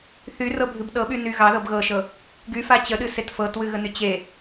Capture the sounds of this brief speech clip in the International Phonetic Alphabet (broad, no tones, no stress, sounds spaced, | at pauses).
θ y r ɤ bʱ ɨ b ɗ ɤ ɓ y n y ɣ ɑ ð ɤ b ɣ ɤ ʃ ɤ | ɡ y f a t͡ɕ ə ɗ ɨ s e t f ɤ t w ɨ ɣ ə n y t͡ɕ e